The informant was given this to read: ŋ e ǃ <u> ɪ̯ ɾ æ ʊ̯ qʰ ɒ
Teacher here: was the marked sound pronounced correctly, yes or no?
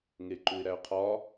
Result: yes